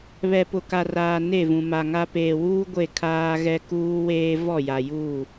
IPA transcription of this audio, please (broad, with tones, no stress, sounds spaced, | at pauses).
β ɛ˨ p ʊ˨ k a˨ r aː˨ n e˦˨ v ũ˨ m a˨ ŋ a˦ p eː˨ w uː˦ ɡʷ e˦˨ kʰ aː˦ ɣ ɛ˦ k uː˦ w eː˦ v ɔ˦˨ j a˨ j uː˦˨